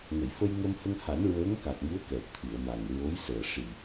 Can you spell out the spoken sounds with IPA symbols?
ŋ ə˨˩˨ j f ə˧ j ŋ ə˧ m h ə˧ ŋ h a˨˩˦ n ɹ əː˧˥ ŋ k a˨˩ k̚ m u˧˥ ə̯ k ɛ˨˩ p̚ t̪ʰ ɨ˨˩˨ ə̯ m a˨˩ ŋ ɹ o˧˥ j s əː˨˩ ʂ i˨˩

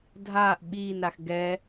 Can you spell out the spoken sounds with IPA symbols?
dʱ aː ʔ ɓ iː n ɾ a x ɡ ɛ

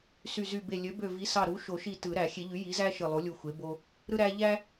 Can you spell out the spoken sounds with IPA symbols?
s y˧˩ z y˧˩ b e˧˩ lʲ ø˩˥ b ø˧˩ v i˩˥ s ɑ˧˩ ɾ u˩˥ ʃ o˨˩˦ ʃ i˧˩ t ɯ˨˩˦ ɾ æ˨˩˦ xʲ e˨˩˦ ʎ y˩˥ j i˩˥ z æ˦ ʃ ɯ˧˩ lˠ u˩˥ lʲ u˧˩ xʷ e˩˥ b o˦ | ɾ ɯ˦ ɾ æ˦ ʎ æ˦

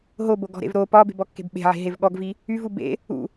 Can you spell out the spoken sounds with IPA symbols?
ɦ o b o ɡ ɔ̤ ɾ ḛ v ɾ o p ɒ b e̤ b ɔ kː e̤ b ɓ e̤ ʕ e̤ ɦ e v ɠ ɔ ɡ v i | y v u b ḛ | ṵ

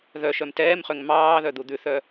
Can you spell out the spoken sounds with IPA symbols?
ð œ ʃ œ m t ɛː m χ ø ŋ m ɑː ð œ d̪ u d̪ ʉ θ œ

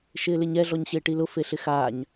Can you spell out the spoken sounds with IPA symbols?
ʃ ɪː l ɪ ɲ ɛ ɮ ɔ ɲ ɕ ɪː ʈ i l ʊ f e ɬ ɪ x aː ɲ

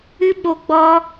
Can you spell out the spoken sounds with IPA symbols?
ɨ˦ ɓ o˧ ɡ͡b ɔ˦

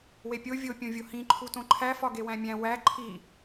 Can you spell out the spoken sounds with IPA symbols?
w e pʲ o vʲ o pʲ õ vʲ o h ĩ ǃʰ u t õ ǃʰ æ f ɒ ɡ e w æ̃ mʲ æ̃ w æ ǃʰ i

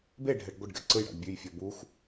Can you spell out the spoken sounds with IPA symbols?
b e ɖʱ ɛ ɖ ɡʷ ɯ ɖ ɡ ɛ̰ ǀ ɯ j ɽ a̰ ɖ bʲ ʉ j fʲ ɔ b u x

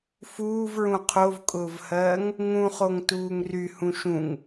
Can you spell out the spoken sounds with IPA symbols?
f uː v ɹ ũ qʰ o v kʼ ʊː v h ɜː ŋ | ŋ ũ χ o ŋ t uː ŋ r y h ũ ʃ ũ ŋ

